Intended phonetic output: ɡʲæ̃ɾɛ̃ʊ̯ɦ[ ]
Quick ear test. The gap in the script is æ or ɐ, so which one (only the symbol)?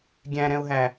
æ